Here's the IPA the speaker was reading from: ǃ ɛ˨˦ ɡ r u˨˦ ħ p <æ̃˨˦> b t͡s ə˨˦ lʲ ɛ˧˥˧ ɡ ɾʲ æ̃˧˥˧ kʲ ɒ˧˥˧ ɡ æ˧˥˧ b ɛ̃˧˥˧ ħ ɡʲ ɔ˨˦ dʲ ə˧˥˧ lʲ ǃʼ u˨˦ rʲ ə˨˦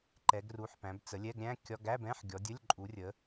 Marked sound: correct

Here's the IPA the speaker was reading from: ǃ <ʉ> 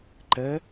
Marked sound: incorrect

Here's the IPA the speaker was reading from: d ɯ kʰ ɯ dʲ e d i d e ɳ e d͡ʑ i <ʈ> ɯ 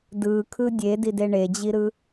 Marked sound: incorrect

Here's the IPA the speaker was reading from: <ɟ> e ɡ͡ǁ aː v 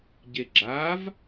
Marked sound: correct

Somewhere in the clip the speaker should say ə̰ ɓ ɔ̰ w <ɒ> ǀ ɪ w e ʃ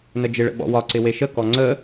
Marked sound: correct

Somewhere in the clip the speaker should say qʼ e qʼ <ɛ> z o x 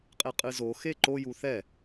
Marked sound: incorrect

